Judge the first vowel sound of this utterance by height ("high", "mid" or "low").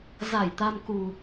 low